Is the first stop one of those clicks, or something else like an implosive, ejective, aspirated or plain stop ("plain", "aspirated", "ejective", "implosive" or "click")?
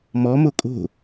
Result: ejective